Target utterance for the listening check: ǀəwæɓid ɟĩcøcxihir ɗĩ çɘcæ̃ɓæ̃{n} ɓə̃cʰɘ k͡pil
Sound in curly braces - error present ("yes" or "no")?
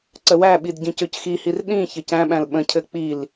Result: yes